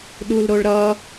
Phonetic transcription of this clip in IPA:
ɗ u l ɾ o ɭ ɾ ʌ

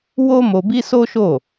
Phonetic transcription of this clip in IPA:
w o˦ m o˧ b i˦ s o˦ ʃ o˦˨

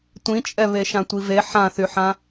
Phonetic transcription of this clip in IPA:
tʷ ĩ t͡ʃʼ ɛ β e ʃ ã tʷ i v e ħ ã θ y ħ ã

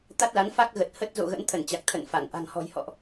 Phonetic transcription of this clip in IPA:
t̪ a˦˥ t̚ l a˨˦ n f a˦˥ k̚ ɣ ə˨˩ t̚ h ə˦˥ t̚ z o̰˧˨ ɣ ə̰˧˥ n t̪ʰ ə˧˩ n t͡ɕ a˨˩ k̚ t̪ʰ ə̰˧˨ n f a˧˩ n ʔ a̤˨˩ ŋ h ɔ̤˨˩ j h ɔ̰˧˨ ʔ

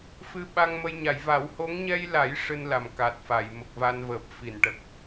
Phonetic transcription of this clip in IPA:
f ɨ˧ ɓ a˧ ŋ m ə˧ j ɲ a˨˩˨ j v a˨˩˦ w h o˧˥ ŋ ɲ ɛ˧ j l a˨˩˦ j ʂ ɨ˧ n l a˨˩ m k a˨˩ t̚ f a˨˩˨ j m ə˨˩ k̚ v a˧ n v əː˨˩ p̚ f i˨˩˨ n ʈ ə˨˩ k̚

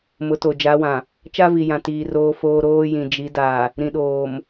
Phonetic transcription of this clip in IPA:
m ʊ˨˦ t o˨ d͡ʒ a˨˦ w ã˨ | t͡ʃ a˦ v i˨ j ã˨ t iː˨ r oː˨ f oː˨ ɾ oː˦ j ĩ˨ d͡ʒ i˨˦ d a˨ | ɾ ĩ˨ ɗ oː˨ m

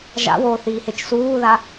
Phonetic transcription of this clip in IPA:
ʒ a̰ w oː θ iː h e t͡ʃ s uː ð a

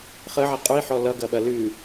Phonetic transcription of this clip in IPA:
χ ə ʕ ɛ qʼ ʉ i̯ ħ ɔ l ʌ ɡ ɐ ɓ ɐ l ʉ

